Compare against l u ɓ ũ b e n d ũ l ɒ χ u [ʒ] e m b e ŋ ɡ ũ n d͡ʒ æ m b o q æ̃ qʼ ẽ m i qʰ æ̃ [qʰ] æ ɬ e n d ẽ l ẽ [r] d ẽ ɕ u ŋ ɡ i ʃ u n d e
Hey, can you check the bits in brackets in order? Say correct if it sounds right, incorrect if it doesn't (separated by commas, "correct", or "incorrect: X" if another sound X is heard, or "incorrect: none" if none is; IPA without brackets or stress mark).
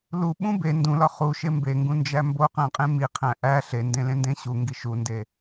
incorrect: ʃ, incorrect: ʔ, incorrect: n